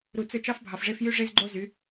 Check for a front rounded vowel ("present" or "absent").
present